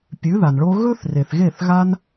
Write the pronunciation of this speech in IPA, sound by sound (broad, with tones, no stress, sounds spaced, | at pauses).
pʲ ʉ˨˦ ð a˨ n ɭ o˦ ɣ ɵ˦ θ r e˨ θ ɣ e˦˨ θ ɣ a˦ n